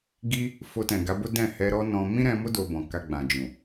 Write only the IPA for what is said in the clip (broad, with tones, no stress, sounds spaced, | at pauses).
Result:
ɡ i˦ | f o˧ t ɛ̃˨ ɡ a˨˦ b o˦ d ɛ̃˦˨ h ɛ˧ ɾ ɔ˦ n ɔ̃˧ m ĩ˦ ɾ ɛ̃˧ m o˦ d o˧ b ɔ̃˨ k a˧ ɡ͡b ã˨ d͡ʒ ũ˨